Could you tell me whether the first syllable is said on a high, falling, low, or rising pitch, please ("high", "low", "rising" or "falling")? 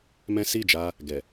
high